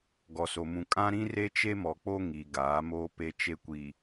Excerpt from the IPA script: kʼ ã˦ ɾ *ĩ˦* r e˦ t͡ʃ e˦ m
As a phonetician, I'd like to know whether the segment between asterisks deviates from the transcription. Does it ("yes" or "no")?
no